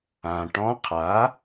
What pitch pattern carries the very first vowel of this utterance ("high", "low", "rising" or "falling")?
low